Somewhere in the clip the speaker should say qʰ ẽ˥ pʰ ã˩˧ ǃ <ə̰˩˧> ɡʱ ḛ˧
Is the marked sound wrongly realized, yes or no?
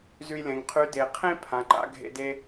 yes